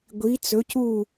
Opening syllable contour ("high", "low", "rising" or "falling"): rising